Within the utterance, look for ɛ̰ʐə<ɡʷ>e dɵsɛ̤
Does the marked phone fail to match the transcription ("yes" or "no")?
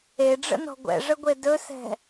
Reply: no